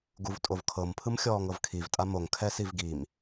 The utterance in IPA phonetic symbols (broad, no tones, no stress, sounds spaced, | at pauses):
ɡ u v tʼ o v kʰ ɤ m pʰ ɯ m xʲ ɔː ŋ ɤ v kʰ i v tʼ a m o ŋ kʰ ɛ s i v ɡ i m